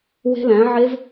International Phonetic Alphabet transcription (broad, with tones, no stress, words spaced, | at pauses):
we̤˦˥læ̃˩˥ʕe˦˥v